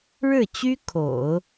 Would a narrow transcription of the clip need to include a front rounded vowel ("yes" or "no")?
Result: yes